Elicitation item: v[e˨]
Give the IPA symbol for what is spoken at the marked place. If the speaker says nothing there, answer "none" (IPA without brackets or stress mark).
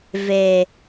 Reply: e˨